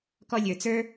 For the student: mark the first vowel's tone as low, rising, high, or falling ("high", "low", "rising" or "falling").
high